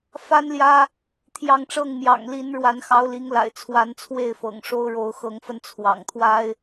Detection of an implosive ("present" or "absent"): absent